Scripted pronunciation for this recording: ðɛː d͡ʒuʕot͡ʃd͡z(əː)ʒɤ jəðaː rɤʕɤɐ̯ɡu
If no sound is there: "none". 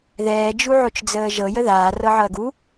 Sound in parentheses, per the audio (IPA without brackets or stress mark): əː